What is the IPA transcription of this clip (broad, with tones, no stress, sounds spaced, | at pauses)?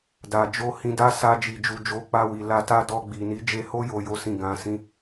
d a˨ d͡ʒ o˧ h ĩ˧ d a˦ s a˧ d͡ʒ i˨ d͡ʒ u˨ d͡ʒ o˨˦ k͡p a˧ w i˨ l a˧ t a˦ d ɔ˧ ɡ͡b i˨ n i˨˦ d͡ʒ e˧ h o˦ j o˧ j o˦ s ĩ˦˨ ɡ ã˨˦ s ĩ˦